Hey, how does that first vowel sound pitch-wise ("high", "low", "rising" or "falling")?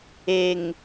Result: low